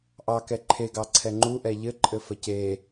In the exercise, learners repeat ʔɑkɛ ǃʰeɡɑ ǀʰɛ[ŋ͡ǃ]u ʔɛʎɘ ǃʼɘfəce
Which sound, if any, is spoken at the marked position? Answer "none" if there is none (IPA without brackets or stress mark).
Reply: ŋ͡ǃ